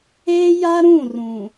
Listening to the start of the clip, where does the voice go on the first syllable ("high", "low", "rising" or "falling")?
high